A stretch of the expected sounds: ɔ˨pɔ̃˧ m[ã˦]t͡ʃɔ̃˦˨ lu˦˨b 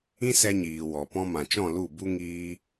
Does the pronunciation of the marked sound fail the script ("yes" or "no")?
yes